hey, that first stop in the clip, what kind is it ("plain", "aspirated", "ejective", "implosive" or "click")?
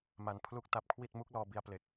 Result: aspirated